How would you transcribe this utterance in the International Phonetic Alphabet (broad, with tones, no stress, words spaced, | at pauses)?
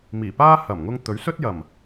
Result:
miː˨˩paː˥ hɐ˨˩mŋʊ˧ŋ t̪ɵ˨˥ɥsɵ˥t̚jɐ˨˩m